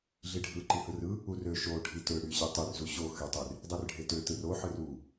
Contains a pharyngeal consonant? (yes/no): yes